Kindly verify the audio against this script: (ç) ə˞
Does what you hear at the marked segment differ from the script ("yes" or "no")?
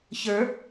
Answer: no